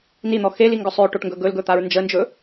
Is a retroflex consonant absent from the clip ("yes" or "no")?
no